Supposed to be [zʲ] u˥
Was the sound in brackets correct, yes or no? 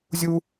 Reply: yes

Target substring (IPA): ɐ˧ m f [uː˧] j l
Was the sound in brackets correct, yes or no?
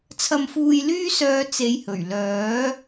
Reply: yes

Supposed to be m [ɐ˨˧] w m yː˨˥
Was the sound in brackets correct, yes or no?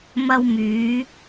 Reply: no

